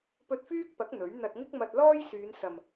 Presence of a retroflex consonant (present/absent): absent